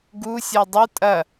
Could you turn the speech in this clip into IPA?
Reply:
ɡu sʲɔdˤu tʼɐ

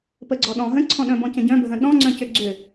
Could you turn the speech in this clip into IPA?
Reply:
pəɡ͡ǀɔɗɔ̃ ɦə̃ǀʰɔ̃ɗœ̃bɔ̃ cə̃ɟœ̃bʱə̃ ɗɔ̃ŋ͡ǀœ̃ cʏɡ͡ǀʏ

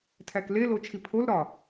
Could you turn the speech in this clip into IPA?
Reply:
tʰækle lot͡ʃʰipʰolɾɒ

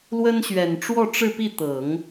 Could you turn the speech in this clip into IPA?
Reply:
lwə˥nɕɥɛ˨˩n ʈ͡ʂwɔ˥˧ʈ͡ʂɻ̩˥˧pi˥˩t̪ɤ˨˩˦ŋ

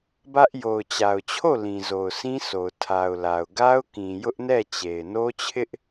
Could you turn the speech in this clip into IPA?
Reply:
bä˦ʔ jo˨ʊ̯t͡ɕa˨ʊ̯t͡ɕʰo˦˨ lĩ˨zo˨ʊ̯sʰĩ˦sʰo˨ʊ̯ tʰa˨ʊ̯la˨ʊ̯ ɡa˦ʊ̯kĩ˨ jʊ˦ʔnɛ˦˨t͡ɕe˨ɪ̯ no˦t͡ɕʰɪ˦ʔ

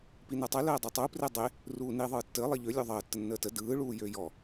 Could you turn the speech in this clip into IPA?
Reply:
pinɐtˤə ləːdˤytˤu predˤe | ruːni ðˤɯːtːəː lˠiʎø lʲøðˤəː tːənːəːtə dɯː ɭuːjøjɔ

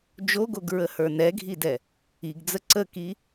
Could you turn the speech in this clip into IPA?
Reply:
d͡ʒoɡoɡɹəhə˞ nɛɡʱidɛ | iɡd͡zə ǀəki

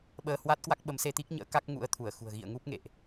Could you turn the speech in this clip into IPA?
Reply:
ɓəː˧hwa˦˥t̚kwa˦˥k̚ ɓə˨˦mse˧t̪i˦˥k̚ɲə̰ː˧˥ ka˦˥k̚ŋṵ˧˥ə̯t̪ʰu˧˩ə̯xṳ˨˩ə̯ ɣḭ˧˨ə̯ŋu˦˥p̚ŋḛ˧˨ʔ

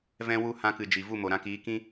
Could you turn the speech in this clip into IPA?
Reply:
vɛ̃˧wu˧ hã˧kɨ˨ d͡ʒi˨ vu˦˨mo˨ɾã˧kiː˨˦ kĩ˦

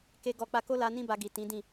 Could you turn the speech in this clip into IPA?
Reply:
ke˦ɡɔ˦˨ k͡pa˧ko˦la˧ nĩ˦ ba˧ɡi˨tĩ˨˦dĩ˦˨

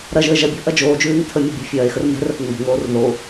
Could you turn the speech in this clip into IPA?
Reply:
ɾɐʒəː ʒɐbʲo̤ ʔɐd͡ʒoːd͡ʒʉːŋ tʰəmʲɛ bʲo̤fʲɐːe̯xər mɛ̤rəθ ŋ͡mo̤ŋoːr ðo

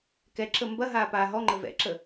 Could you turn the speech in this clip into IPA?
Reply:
kɛǁə mbɐɦaːpaː ɦɔŋ͡ǃə vɛ̰ǁə

